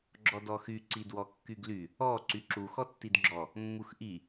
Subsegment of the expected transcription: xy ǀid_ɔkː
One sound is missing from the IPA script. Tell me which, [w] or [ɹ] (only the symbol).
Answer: w